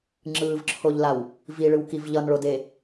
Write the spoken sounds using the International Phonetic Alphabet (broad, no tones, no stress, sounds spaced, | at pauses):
ŋ͡ǁ ɯː v ǁʰ o ʎ l a w | v i ɭ ɯ w k i v ʎ ʌ n ɭ o d e